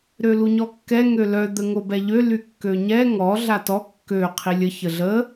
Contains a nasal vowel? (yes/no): no